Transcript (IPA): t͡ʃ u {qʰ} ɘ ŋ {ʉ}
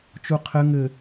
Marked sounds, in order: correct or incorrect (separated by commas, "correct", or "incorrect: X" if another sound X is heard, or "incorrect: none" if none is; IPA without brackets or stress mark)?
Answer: correct, incorrect: ɘ